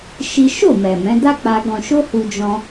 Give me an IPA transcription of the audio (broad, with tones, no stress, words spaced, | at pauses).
ʃi˦ ʃo˦˨mɛ˨ mɛ̃˨˦ da˦k͡pa˧ ɡɔ̃˧ʃo˦hu˧ d͡ʒɔ̃˦